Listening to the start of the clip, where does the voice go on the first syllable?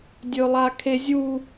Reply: low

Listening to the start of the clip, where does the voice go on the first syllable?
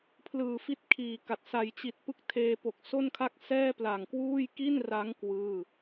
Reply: low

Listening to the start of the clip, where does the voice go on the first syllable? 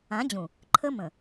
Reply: rising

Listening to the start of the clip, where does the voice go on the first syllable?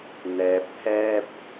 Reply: low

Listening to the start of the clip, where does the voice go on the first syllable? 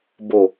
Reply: low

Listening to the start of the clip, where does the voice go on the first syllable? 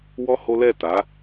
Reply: high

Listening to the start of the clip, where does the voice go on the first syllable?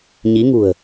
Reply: rising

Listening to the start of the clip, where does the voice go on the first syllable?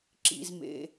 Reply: low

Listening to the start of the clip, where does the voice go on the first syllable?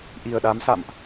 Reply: low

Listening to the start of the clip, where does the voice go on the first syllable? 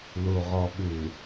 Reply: low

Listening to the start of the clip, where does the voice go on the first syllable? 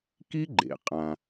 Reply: high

